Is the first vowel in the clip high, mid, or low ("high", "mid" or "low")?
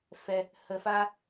mid